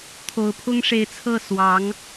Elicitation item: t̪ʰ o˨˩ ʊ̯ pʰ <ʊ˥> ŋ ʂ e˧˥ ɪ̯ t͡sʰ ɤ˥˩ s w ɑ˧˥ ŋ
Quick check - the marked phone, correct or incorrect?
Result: correct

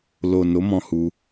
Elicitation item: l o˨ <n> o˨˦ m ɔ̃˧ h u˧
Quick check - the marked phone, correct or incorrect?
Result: correct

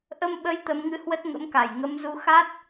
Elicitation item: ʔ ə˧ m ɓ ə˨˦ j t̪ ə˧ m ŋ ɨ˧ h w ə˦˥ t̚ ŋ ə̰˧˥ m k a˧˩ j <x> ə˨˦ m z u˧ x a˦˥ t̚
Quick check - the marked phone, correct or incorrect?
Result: incorrect: ŋ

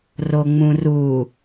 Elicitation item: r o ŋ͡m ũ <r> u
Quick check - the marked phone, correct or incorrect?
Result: correct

